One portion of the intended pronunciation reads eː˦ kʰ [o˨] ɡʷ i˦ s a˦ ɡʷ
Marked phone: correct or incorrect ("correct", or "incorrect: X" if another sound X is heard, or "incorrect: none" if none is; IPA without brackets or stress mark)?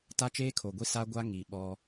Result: correct